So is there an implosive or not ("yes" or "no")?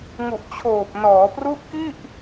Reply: no